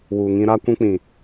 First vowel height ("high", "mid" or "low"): high